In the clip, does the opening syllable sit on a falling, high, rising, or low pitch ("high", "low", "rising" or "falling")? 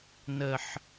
low